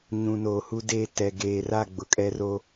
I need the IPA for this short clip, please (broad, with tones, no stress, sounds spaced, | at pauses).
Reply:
ɲ ũ˨ n oː˨ h u˦ d e˦˨ t ɛ˨ ɡ eː˨ r a˦˨ ɡ͡b ʊ˨˦ kʼ ɛ˦ r o˦